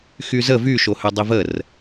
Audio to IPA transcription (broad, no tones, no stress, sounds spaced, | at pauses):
x y z ə v y ʃ o h ø dˤ i v ə r